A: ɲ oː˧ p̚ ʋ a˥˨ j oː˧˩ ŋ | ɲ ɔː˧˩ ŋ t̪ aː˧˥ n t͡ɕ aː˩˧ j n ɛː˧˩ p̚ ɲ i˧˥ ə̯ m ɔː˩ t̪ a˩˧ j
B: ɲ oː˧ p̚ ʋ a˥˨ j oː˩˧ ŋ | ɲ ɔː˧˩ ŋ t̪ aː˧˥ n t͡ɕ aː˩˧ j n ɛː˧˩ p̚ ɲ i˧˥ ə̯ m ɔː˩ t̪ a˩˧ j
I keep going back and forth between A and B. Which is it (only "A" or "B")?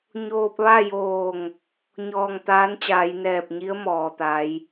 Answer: A